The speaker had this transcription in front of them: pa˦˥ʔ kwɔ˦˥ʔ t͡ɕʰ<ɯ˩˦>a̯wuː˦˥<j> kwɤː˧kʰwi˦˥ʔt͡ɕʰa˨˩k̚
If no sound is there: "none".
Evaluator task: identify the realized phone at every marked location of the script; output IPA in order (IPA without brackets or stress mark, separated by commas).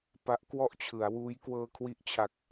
ɯ˩˦, j